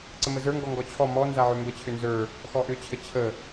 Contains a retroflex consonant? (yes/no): no